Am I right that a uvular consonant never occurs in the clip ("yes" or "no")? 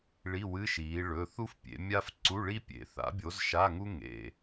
yes